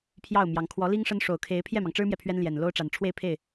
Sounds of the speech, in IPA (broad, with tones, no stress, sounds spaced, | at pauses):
pʰ j ɑ˥˩ ʊ̯ m j ɑ˧˥ ŋ kʰ w ɔ˧˥ l i˥ ŋ ʂ ə˥ n ʂ o˨˩ ʊ̯ kʰ e˧˥ ɪ̯ pʰ j ɛ˥˩ m ɑ˩ ŋ ʈ͡ʂ ɻ̩˥ m j ɛ˨ pʰ ɥ ɛ˥ n l j ɛ˨˩ n l o˥ ʊ̯ ʈ͡ʂ a˨˩ n ʈ͡ʂʰ w e˥˧ ɪ̯ pʰ e˥˩ ɪ̯